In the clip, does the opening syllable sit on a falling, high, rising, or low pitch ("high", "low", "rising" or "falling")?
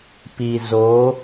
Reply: low